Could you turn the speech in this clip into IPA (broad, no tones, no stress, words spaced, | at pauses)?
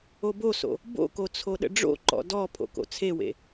oboso̰ | bo̰ko t͡sʰoɗə̰ɖ͡ʐo̰ǃɔ̰ dɔ pʰo̰ko̰t͡sʰewḛ